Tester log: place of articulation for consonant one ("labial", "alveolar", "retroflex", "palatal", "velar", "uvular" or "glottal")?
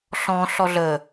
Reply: alveolar